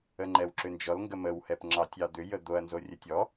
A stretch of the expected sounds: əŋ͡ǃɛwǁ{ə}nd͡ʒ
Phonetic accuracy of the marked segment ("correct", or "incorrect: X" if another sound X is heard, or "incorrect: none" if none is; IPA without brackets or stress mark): incorrect: ʏ